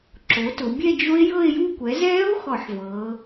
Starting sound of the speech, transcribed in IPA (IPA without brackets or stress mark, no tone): ǁ